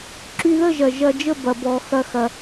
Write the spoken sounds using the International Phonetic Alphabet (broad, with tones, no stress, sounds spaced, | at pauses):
ǁ y˧ ð ə˦˨ ʒ ɐ˨ ʒ ɐ˧ d͡ʒ ə˦˨ b ɐ˨ b ɔ˨ x ɐ˧ x ɐ˨